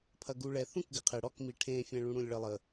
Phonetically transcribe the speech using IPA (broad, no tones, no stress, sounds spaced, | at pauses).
pʰ ɐ ɡ u ɭ ɛ θ ũ k ɡ ɪ qʰ ɪ ɽ ɔ k m i ʈʰ ẽ fʲ ɛ̃ ɭ ũ ɽ ũ lʲ ɭ ə lˠ ə